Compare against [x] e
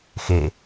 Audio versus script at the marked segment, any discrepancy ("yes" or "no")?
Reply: no